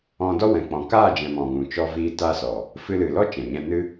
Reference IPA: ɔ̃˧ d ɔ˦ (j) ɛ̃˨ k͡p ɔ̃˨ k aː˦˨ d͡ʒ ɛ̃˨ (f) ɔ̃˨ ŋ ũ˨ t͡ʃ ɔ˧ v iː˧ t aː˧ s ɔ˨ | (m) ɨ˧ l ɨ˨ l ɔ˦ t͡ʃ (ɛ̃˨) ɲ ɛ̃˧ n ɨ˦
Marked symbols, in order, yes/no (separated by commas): no, no, no, yes